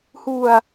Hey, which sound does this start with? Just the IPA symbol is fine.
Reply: h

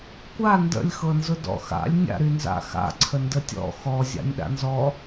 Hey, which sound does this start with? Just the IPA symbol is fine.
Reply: kʷ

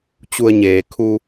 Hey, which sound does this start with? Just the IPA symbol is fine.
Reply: t͡ɕ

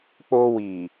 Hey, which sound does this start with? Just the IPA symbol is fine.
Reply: k͡p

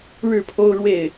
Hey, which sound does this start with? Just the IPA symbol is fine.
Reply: ɻ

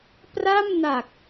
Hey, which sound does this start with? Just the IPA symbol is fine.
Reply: p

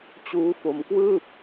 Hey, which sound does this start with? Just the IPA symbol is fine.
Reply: t͡ɕ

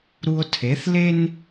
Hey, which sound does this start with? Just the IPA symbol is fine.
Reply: ɾ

